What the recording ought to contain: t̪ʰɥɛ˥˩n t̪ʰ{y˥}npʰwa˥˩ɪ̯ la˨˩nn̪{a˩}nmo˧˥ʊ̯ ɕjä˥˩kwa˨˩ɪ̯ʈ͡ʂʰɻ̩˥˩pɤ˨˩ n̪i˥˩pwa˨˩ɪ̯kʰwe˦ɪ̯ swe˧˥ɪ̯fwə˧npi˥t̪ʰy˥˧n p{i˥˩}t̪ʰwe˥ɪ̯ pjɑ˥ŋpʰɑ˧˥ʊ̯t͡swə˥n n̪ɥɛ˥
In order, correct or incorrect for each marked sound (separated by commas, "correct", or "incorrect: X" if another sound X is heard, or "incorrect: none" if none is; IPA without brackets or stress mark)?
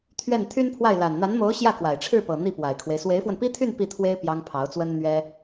correct, incorrect: a˧˥, correct